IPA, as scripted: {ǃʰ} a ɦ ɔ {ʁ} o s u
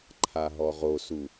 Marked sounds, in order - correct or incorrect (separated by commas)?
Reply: correct, correct